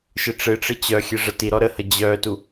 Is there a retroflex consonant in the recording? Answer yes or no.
yes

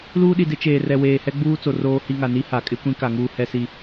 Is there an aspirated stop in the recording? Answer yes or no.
no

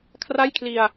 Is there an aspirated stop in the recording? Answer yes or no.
yes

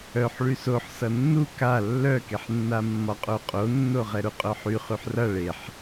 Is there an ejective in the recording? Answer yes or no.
yes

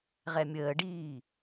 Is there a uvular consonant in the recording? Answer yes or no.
yes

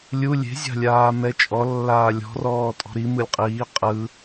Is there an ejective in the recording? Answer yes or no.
yes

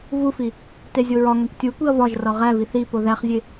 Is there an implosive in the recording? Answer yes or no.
no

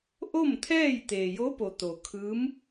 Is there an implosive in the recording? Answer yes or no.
no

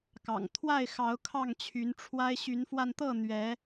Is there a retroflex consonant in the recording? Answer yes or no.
yes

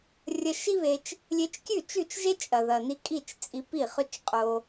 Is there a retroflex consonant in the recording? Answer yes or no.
no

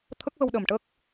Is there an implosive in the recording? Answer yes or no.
yes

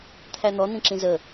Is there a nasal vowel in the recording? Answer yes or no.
yes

